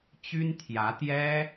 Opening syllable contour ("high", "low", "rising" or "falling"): high